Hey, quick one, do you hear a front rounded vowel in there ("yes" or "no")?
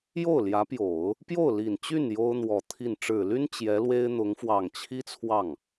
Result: yes